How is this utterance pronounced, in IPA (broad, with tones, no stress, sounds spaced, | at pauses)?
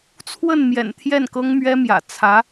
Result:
t͡sʰ w ə˥˩ n m j ɛ̰˨˩ n t̪ʰ j ɛ˥˩ n k ɤ˥ ŋ m ɥ ɛ˥ m j ä̰˨˩ t͡sʰ ä˧˥